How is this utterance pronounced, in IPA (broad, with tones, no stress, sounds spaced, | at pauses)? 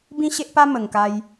b ĩ˦ ɕ e˦ ʔ p a˦ m ə˨˩ ŋ k a˧ j